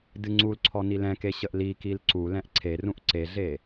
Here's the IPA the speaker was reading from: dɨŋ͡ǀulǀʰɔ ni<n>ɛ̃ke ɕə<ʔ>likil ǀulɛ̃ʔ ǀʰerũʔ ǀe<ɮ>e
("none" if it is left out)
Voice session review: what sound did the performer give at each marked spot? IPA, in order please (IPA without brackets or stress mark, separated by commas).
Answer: l, ʔ, ɮ